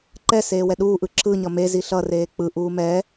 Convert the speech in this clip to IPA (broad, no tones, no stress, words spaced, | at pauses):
ǃɛseːwɛ ɗuːʔɯ ǁɯɲʌ mezi ɬʌreː k͡pɯʔuː mɛ